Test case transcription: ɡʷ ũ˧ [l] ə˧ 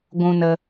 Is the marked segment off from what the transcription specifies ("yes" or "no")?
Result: yes